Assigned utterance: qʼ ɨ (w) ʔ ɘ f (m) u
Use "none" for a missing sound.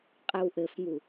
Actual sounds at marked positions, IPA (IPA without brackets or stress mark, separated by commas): w, m